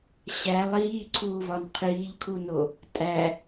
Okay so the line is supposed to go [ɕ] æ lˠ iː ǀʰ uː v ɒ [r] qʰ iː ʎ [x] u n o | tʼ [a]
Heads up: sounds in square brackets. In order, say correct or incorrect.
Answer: correct, incorrect, incorrect, incorrect

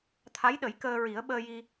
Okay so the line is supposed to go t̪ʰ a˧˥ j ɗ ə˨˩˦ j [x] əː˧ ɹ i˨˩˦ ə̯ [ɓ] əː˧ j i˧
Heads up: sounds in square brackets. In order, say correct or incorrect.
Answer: incorrect, correct

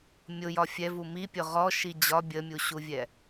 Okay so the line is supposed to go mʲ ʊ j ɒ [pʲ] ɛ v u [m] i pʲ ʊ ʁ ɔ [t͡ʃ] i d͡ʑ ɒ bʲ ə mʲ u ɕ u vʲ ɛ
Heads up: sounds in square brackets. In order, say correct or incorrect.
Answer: incorrect, correct, incorrect

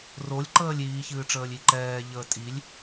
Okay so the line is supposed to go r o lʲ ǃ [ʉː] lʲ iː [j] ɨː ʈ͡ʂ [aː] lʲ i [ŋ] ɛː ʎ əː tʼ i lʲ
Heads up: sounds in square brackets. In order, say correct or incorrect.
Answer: incorrect, incorrect, incorrect, incorrect

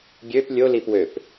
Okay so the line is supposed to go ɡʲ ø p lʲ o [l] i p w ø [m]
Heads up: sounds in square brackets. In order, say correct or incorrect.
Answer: correct, incorrect

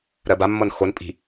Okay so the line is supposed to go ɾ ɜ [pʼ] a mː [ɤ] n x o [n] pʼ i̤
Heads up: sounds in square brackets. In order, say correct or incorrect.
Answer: incorrect, correct, correct

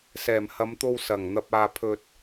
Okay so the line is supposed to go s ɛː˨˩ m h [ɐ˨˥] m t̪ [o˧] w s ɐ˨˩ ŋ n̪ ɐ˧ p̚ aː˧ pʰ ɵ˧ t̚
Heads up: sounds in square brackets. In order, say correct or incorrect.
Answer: incorrect, correct

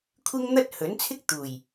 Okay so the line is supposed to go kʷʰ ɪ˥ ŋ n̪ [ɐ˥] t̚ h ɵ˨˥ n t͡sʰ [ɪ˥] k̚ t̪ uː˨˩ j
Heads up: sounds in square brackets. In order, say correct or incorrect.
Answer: correct, correct

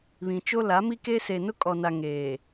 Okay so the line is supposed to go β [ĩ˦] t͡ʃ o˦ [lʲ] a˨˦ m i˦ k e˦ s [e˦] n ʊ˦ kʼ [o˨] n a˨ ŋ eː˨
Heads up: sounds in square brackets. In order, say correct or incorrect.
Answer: incorrect, incorrect, incorrect, incorrect

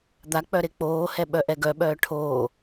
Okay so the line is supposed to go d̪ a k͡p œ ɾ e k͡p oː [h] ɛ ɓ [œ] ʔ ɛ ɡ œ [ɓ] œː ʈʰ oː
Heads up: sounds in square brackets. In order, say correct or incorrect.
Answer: correct, correct, correct

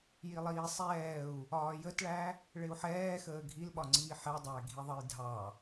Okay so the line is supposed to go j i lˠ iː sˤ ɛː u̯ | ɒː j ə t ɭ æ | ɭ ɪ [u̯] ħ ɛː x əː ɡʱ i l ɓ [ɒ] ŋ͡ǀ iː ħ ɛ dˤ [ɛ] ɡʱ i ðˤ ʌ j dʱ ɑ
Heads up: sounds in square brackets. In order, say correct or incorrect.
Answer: correct, correct, incorrect

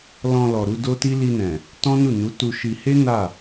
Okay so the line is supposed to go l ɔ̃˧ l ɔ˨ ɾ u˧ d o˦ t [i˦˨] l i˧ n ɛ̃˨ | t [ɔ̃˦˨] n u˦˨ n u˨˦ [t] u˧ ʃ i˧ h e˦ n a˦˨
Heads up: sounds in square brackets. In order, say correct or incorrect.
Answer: incorrect, incorrect, correct

